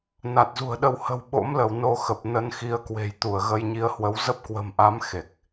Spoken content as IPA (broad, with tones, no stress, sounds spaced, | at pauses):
n a˨˩ t̚ z ṳ˨˩ ə̯ ɗ ə˧ w h ə̤˨˩ w ɓ o̰˧˥ m l ə˧˩ w n o˧ x ə˨˩ p̚ n ə˧ n x i˨˦ ə̯ k w e̤˨˩ j t̪ u˧˩ ə̯ ɣ ə˧ j ɲ i˧ ə̯ h w ə˨˦ w z ə˦˥ p̚ k w ə̤˨˩ m ʔ a˨˦ m x e˨˩ k̚